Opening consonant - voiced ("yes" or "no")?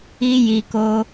yes